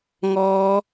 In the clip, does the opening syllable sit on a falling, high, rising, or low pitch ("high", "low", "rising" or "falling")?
high